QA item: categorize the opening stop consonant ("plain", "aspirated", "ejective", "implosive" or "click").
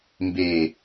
plain